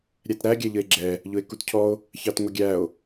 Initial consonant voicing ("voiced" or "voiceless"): voiced